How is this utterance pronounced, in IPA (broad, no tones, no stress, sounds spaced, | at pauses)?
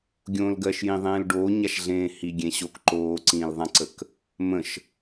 ɡʲ õː l ɡ ɜ ʃ j ĩ ðˤ ẽː l ɖ oː ɲ a ʃ ɮ ẽː h i ɡʲ ẽ ɕ o k ǃ oː ǀ ĩː l ðˤ ã ǀ ə k | m ə̃ ʃ